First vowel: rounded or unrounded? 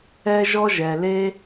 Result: unrounded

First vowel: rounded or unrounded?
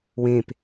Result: unrounded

